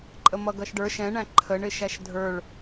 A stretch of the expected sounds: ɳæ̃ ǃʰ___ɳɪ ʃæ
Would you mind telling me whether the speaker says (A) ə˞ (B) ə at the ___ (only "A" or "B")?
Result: B